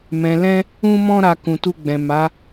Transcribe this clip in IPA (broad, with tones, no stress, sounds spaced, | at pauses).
m ɛ̃˨ l ɛ̃˧ | ũ˧ m ɔ̃˧ ɾ a˧ k ũ˨ t u˧ ɡ͡b ɛ̃˨ m a˨˦